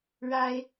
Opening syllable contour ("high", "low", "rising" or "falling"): high